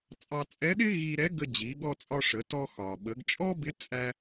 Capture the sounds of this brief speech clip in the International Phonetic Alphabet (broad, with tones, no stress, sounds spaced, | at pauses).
t͡sʼ ɑ˧ t͡sʼ ɛ˧˥ ɗ ɪ˥ ɣ i˧ ɾ ɛ˧˥ ɡ ə˧ d͡ʑ i˩˧ ɠ ɔ˧ t͡sʼ ɒ˧ ʂ ə˩˧ t ɔ˧ x ɒ˩ ɓ ə˩˧ ɡ t͡ʃʼ ɔ˥ b ɪ˧˥ t͡sʼ æ˧